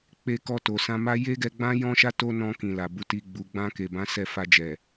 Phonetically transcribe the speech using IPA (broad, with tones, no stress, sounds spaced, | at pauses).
k͡p e˧ k ɔ˧ t o˨ s ã˧ m a˦ j e˦ ɡ ɛ˧ ɡ͡b ã˦ j ɔ̃˦ ʃ a˦ t o˦ n ɔ̃˧ k ĩ˨ l a˨ b u˨˦ t i˧ ɡ͡b u˧ ɡ͡b ã˧ k e˨ b ã˨˦ s ɛ˦˨ f a˧ d͡ʒ ɛ˨